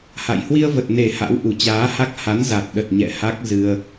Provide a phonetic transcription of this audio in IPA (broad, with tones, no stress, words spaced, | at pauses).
ha̰˧˨j hwi˧ə̯və˨˩t̚ne˨˩ ha̰˧˥wʔu˨˩t͡ɕaː˨˦ha˦˥k̚ ha˨˦nza˨˩t̚ɗə˨˩t̚ ɲɛ̰˧˨ ha˦˥k̚ zɨ˧ə̯